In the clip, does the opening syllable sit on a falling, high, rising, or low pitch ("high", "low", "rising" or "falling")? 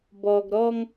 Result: low